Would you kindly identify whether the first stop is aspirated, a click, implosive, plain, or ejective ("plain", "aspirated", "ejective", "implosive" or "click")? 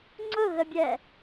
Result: click